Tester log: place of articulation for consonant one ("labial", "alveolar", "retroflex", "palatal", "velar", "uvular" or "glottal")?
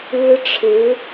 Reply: retroflex